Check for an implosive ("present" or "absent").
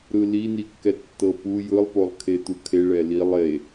absent